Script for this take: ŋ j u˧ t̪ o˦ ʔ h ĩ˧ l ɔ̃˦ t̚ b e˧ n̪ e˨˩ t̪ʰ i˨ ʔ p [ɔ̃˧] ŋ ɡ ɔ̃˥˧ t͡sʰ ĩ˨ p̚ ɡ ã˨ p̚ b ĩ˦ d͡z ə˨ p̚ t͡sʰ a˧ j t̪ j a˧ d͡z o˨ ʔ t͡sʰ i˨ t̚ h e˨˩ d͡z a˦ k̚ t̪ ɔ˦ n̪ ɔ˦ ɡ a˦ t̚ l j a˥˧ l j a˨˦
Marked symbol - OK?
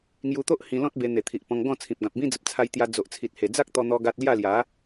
yes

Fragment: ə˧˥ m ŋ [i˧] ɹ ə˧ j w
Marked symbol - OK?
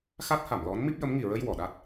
no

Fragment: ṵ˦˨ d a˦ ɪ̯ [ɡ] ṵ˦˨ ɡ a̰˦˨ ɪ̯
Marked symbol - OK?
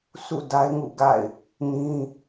no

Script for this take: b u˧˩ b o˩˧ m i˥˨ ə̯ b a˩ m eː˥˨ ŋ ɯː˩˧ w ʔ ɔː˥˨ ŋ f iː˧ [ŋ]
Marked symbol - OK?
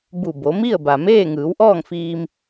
no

